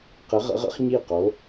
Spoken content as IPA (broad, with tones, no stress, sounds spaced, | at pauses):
q ɘ˧˥ ʁ ə̰˧˥ ʁ ə̰˧˥ χ ɲ i˥˨ q o˧˥